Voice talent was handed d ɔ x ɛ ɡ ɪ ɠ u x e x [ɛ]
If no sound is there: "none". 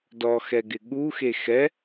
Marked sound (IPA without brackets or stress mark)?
ɛ